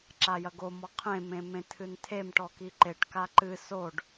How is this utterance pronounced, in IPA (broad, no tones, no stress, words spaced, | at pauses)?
ǁajɐɡo mɔqʰẽ mẽmẽtʰɨntʰem ʈɔkiǃeʈ kaǃɨ soɖ